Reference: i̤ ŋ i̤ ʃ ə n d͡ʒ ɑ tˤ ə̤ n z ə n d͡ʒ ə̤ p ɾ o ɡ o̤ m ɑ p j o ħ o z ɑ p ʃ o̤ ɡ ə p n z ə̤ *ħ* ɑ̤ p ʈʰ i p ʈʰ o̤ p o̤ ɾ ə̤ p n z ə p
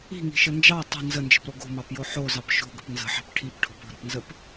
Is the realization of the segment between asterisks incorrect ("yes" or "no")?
no